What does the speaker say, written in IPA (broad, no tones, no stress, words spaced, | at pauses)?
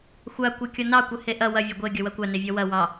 xʷa kʷakʲɔnɑ kʷɘheʔɐ wɐ vʲɐɡʷe ɡʲʌwɐkʷa nevʲɔwɐ wɑ